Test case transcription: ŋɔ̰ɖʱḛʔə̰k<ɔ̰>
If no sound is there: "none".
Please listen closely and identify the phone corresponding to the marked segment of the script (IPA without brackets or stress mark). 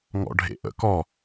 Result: ɔ